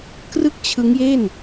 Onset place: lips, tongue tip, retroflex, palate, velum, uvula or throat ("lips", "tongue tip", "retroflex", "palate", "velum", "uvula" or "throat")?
velum